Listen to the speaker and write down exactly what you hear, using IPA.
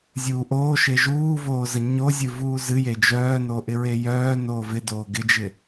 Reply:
zʲuːʔoːʃe ʒuːvoː zəɲozʲɨ vuːzɨje d͡ʒœːno ʔɪɹejœːnoː vɪdoː ɡɪd͡ʒɪ

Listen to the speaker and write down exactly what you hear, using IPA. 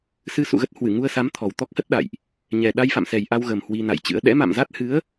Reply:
sɨ˧sṵ˧˨ɣə˦˥t̚ hwɨ˧˩ŋu˧ə̯sa˨˦m t̪ʰɔ˨˩wt̪ɔ˦˥k̚hə˦˥t̚ ɗa̰˧˨jʔ | ɲɛ˨˩ ɗa˧jfa̰˧˨msɛ˨˩j ʔa˧wɣə˨˩m hwi˧na̰˧˨jt͡ɕɨ̰˧˥ə̯ ɗɛ̰˧˥ma̰˧˨mza˦˥t̚ hɨ˨˦ə̯

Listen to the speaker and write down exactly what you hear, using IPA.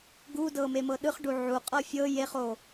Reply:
ɡudɤ memɤɗɯχ ɖuʕu qʼɤfʲɤ jeχo

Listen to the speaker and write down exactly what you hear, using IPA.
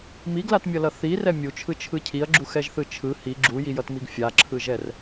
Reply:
miɡlatmʲʌlʌ θirɛ mʲut͡ʃʰɯt͡ʃʰɯ cʰiɐ̯ɡ͡ǁuxɛʒθɯ t͡ʃʰɯ hi ɡ͡ǁujijʌtmiɡ fʲaǁʰɯʒɛr

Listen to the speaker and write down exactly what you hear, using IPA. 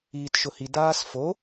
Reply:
iːtʃʊhi daːsfo

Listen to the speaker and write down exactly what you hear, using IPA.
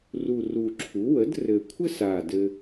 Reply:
ru˨˩r u˨˩ǁʰu˩˥ wə˩˥drɘ˨˩kʷʰɘ˥sa˨˩ dɘ˥

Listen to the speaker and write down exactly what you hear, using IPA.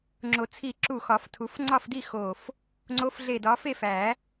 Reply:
ŋ͡ǁo˨˩˦t͡sʰi˧˩ǁu˧˩ xɒ˨˩˦ftʰu˨˩˦f ŋ͡ǀɒ˥˨fdi˥˨ xo˧˩f | ŋ͡ǀo˨˦f ɮe˧˩dɒ˨˦fe˥˨ fæ˨˩˦

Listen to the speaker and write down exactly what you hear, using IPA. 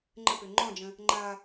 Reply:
ŋ͡ǃəpø ŋ͡ǃɔ̃d͡ʒə̃ | ŋ͡ǃa

